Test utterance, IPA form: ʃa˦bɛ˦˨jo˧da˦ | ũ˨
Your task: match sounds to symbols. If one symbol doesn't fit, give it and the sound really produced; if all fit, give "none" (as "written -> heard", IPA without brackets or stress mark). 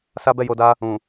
ʃ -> s